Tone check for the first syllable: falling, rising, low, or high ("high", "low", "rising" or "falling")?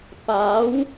rising